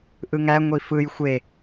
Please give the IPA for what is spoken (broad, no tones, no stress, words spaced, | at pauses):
ʔɯŋæ ŋʷifɯj xʷe